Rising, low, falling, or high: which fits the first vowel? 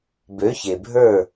rising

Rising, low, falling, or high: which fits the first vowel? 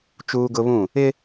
high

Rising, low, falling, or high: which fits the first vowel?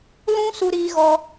high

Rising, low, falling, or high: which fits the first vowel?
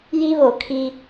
high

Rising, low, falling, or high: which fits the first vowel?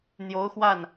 rising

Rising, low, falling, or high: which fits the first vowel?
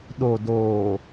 low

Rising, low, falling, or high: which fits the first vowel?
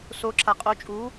rising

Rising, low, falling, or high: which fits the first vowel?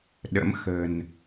rising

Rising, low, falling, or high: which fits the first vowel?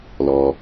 low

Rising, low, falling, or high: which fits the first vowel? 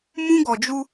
high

